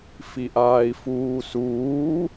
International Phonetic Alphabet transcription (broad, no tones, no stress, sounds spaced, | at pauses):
f i ʔ aː i̯ f uː s uː